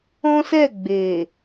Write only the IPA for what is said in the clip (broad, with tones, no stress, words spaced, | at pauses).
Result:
ɔ̃˦sɛ˦˨ ɡ͡be˨